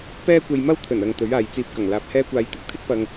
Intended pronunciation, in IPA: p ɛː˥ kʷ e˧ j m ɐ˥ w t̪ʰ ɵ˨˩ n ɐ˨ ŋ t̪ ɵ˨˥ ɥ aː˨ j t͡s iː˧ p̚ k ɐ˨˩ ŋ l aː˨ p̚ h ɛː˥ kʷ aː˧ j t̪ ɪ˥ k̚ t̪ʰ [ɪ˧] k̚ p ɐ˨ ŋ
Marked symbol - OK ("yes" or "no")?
no